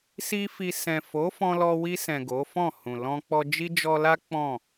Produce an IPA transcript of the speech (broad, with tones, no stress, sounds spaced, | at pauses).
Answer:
s i˦ f i˧ s ɛ̃˨ f o˨˦ f ɔ̃˧ l ɔ˧ w i˧ s ɛ̃˨ ɡ o˨˦ f ɔ̃˦˨ h ũ˨ l ɔ̃˧ k͡p ɔ˧ d͡ʒ i˦ d͡ʒ ɔ˧ l a˦ k͡p ɔ̃˦˨